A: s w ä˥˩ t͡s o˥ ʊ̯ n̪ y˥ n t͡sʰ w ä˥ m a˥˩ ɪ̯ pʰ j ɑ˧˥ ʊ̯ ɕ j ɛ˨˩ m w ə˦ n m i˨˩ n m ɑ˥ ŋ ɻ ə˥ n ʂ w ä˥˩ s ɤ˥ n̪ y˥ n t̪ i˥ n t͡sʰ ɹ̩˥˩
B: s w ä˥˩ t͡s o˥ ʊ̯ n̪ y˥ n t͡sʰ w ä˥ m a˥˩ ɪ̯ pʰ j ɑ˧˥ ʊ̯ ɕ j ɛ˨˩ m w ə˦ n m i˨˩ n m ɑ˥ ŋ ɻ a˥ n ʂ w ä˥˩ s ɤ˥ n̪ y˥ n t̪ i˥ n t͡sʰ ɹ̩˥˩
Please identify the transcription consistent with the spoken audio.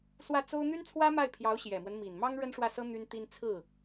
A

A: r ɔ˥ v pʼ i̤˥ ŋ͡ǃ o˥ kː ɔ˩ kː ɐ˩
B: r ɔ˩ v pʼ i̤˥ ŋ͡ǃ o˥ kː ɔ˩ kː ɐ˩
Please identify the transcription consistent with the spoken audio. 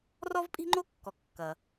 A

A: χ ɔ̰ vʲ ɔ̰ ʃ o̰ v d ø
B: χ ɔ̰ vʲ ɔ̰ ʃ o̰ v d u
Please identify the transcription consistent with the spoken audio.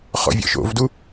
B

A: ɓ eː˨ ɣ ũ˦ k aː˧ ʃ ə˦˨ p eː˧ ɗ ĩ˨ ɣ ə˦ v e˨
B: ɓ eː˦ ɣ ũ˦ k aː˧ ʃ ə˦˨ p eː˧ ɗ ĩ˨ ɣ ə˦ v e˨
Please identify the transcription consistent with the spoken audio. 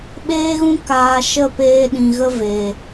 B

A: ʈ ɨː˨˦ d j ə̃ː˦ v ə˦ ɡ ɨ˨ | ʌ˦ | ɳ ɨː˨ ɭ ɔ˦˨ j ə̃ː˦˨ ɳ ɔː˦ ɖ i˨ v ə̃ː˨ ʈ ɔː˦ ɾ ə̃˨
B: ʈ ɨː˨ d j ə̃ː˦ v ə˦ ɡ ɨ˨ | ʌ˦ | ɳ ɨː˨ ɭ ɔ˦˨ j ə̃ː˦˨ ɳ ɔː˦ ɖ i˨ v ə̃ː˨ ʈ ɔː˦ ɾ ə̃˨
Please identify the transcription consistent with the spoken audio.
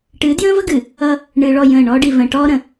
A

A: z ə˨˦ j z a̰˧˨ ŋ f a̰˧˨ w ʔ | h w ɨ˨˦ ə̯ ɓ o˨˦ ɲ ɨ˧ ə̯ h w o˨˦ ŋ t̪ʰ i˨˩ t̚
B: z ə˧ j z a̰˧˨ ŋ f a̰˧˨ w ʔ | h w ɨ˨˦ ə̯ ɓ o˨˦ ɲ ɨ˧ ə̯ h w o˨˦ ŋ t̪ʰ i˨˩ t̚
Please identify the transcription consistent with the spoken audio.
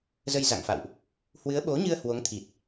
B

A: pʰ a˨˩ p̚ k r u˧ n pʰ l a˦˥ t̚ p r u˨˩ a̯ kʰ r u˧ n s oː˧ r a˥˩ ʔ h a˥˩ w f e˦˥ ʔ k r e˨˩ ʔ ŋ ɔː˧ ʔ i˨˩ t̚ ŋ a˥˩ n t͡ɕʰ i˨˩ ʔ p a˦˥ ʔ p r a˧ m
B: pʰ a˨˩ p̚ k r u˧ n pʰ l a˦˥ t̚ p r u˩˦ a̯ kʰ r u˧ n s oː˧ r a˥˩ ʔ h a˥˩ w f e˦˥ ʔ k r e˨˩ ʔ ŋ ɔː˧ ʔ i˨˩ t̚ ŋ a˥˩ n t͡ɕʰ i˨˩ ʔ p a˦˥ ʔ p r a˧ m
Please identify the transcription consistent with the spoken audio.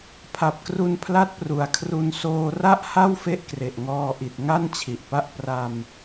A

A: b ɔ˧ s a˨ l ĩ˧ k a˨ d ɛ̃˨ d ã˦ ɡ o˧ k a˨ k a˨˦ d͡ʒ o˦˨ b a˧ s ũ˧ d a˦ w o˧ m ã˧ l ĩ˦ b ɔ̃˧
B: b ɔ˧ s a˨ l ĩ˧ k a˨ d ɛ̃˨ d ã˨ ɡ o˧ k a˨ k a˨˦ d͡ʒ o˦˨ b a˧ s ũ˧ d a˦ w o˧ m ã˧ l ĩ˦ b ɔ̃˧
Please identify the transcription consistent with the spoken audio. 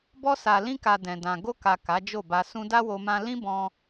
B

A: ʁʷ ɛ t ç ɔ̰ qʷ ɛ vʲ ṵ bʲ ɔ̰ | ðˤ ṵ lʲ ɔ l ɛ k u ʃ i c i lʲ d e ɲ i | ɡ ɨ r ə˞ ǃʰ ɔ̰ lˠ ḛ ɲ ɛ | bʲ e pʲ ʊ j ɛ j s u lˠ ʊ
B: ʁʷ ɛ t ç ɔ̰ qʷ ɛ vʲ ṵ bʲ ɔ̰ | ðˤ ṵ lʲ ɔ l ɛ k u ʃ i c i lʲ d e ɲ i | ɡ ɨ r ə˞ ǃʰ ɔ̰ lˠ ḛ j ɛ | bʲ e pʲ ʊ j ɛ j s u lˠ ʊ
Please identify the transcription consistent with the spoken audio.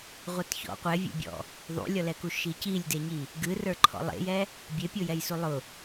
B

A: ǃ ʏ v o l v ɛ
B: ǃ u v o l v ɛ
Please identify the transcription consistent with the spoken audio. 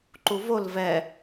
B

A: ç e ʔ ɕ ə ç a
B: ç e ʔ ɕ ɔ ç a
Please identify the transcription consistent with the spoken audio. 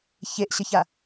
A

